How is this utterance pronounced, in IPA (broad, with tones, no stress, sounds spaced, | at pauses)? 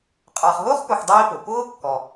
qʼ ɑ˨ χ ɦ ʊː˥ χ p ʊ˨ x dˤ iː˥ p ʊ˩ p ʊː˥ kː ɔ˨